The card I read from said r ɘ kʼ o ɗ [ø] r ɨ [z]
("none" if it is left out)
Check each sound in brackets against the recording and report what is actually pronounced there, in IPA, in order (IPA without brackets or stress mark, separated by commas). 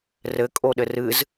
ɘ, z